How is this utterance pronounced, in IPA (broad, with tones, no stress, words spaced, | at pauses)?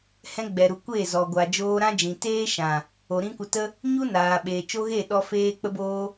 hɛ̃˧ɡ͡bɛ˨ɾu˨ kʷe˦˨zɔ˨ɡʷa˨ d͡ʒoː˧ ɾã˦d͡ʒĩ˨ teː˦ʃã˨ | o˨ ɾĩ˦kʷə˧tə˦ | ɲu˦naː˨ɓeː˨ t͡ʃo˦ɣe˦˨ɗɔ˧ feː˧k͡pə˧boː˧